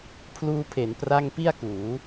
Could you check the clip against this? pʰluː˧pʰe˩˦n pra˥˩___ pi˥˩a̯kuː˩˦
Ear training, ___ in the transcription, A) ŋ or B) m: A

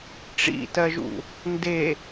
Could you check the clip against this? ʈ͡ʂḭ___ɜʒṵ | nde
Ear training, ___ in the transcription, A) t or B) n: A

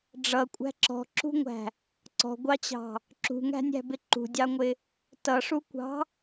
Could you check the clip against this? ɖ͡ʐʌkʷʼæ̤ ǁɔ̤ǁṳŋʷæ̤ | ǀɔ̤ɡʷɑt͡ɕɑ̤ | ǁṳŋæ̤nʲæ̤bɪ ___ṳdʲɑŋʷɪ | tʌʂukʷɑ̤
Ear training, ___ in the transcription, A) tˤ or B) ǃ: B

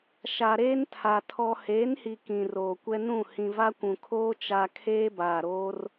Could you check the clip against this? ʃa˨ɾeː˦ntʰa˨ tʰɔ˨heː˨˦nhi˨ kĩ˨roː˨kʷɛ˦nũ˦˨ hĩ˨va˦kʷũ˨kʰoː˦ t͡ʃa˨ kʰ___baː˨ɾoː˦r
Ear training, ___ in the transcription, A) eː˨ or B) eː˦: B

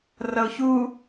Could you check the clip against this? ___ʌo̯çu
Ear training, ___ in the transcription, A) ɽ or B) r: B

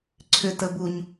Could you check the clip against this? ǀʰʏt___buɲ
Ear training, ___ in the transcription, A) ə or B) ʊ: A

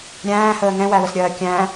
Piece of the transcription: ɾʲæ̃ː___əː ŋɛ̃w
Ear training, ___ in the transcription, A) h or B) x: A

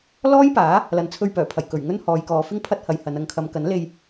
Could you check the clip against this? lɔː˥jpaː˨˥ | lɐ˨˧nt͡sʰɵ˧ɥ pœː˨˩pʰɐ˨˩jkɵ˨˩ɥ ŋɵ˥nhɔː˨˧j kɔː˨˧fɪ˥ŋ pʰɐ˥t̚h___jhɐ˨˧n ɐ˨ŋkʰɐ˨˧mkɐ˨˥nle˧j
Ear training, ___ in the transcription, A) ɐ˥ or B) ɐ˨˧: B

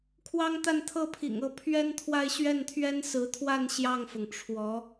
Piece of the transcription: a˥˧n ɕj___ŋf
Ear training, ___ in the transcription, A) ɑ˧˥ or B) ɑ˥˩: B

